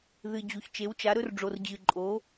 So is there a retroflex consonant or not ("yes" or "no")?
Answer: yes